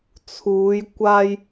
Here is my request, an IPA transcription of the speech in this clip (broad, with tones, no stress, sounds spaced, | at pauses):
t͡sʰ uː˨˧ j kʷ aː˧ j